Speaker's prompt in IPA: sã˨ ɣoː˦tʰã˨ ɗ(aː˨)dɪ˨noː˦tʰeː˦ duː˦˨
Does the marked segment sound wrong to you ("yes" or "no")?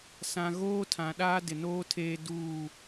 yes